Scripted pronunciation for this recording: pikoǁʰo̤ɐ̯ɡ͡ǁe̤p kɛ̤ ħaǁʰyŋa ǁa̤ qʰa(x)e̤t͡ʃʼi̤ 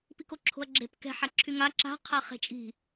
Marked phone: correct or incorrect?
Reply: incorrect